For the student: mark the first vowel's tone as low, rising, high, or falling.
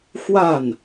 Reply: falling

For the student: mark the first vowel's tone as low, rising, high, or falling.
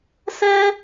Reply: high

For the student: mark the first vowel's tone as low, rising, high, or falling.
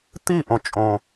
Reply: falling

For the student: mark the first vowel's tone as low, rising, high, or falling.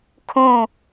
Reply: falling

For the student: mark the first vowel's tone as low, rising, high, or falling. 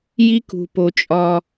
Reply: high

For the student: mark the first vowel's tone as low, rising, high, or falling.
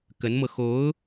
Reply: rising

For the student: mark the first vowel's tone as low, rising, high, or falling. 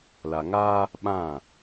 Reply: low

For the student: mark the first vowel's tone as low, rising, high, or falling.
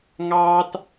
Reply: high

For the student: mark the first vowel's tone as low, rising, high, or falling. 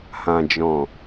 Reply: low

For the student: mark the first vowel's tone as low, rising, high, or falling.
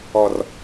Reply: low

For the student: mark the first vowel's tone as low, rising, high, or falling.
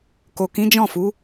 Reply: low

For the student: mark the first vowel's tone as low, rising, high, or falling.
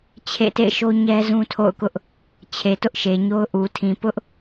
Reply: falling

